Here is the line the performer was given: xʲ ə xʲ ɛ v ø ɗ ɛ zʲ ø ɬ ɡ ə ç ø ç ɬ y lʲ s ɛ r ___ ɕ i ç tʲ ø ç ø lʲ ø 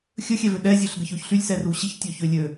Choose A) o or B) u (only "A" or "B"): B